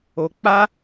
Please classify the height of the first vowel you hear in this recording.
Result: mid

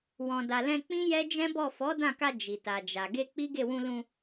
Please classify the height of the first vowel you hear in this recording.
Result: mid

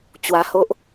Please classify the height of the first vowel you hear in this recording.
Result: low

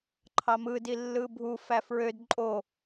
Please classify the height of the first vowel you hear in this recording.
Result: low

